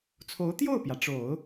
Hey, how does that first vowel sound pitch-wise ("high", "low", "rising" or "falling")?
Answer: rising